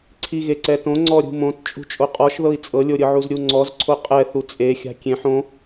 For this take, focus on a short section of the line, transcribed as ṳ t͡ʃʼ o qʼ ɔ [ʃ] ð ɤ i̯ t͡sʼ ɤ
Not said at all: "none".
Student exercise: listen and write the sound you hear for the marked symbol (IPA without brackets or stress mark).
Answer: ʃ